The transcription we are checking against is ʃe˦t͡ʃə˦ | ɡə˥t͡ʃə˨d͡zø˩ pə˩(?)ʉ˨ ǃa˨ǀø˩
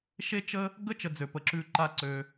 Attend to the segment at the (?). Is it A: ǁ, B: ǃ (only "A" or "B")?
A